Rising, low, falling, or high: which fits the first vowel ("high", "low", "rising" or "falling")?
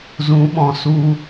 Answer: rising